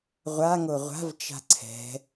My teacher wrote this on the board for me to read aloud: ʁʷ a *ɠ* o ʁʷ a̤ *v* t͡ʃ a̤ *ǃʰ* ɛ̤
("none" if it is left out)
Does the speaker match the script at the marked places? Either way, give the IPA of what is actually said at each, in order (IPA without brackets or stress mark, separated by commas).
ŋ, v, ǀʰ